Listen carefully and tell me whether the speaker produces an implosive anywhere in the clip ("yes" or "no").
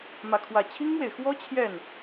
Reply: no